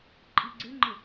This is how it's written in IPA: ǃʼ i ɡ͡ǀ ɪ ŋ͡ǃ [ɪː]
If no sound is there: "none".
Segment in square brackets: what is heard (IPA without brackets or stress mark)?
ɪ